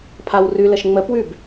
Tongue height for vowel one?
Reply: low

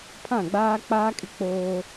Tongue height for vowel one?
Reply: low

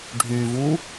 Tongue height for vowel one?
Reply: high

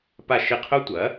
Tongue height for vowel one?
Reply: low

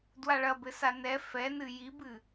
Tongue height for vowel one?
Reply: low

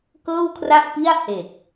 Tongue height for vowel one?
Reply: mid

